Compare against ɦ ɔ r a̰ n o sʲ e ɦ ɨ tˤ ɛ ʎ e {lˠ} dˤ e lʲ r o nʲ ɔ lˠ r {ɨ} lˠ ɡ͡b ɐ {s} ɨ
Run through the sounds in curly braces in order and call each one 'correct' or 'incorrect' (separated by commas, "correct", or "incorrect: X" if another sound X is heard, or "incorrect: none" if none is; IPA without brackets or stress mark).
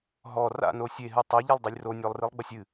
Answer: correct, correct, incorrect: sʲ